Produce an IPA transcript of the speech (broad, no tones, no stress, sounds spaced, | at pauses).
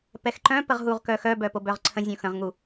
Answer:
p ɛ x ǃ œ̃ p ə ʁ ɦ u ʁ k œ x œ b œ p o b œ ʁ ǀʰ ə̃ zʲ õ x ə̃ ʁ ŋ u